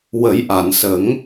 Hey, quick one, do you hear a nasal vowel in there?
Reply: no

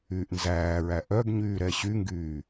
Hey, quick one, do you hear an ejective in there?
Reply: no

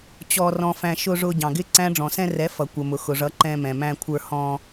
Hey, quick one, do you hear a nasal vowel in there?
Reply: yes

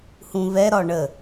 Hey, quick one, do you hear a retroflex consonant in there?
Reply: yes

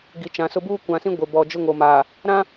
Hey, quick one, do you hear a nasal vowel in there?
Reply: yes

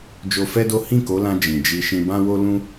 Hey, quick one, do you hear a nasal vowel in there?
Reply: yes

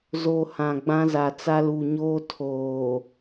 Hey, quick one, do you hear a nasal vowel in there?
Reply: yes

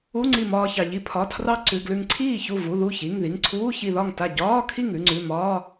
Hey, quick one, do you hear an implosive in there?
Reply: no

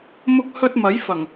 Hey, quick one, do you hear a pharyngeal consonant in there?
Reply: no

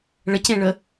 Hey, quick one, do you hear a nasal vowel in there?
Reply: yes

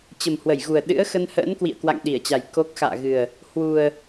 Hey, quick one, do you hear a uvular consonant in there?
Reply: no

